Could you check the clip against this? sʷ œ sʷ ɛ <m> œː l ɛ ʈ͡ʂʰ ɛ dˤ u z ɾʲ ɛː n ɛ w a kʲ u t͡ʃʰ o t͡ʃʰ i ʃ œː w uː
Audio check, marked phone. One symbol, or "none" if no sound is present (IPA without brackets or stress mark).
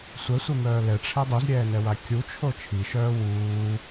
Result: m